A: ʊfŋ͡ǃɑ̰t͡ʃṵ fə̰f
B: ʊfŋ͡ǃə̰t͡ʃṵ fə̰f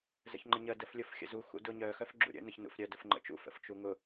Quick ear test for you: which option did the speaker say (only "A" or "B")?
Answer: B